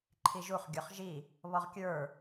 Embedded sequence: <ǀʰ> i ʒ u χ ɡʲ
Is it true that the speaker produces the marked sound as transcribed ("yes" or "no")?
no